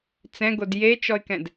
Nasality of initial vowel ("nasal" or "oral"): nasal